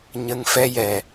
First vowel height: mid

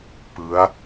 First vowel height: high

